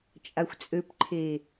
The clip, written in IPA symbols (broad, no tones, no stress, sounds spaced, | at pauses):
t͡ʃʼ a xʷ t͡sʼ ø p ǃʰ e